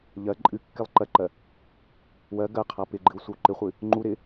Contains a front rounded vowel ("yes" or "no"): no